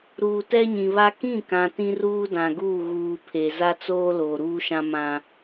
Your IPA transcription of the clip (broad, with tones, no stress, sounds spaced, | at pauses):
ɾ uː˨ t ɛ˦ ɲ ĩ˨ β a˦ k ĩ˦˨ k ã˨ t ĩ˦ r uː˦ d ã˨ ɡ uː˦˨ ɣ uː˨ pʰ e˨ z a˦ t͡s oː˦ l oː˨ ɾ uː˦ ʃ ã˦ m ã˦